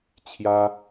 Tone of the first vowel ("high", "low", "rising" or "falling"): high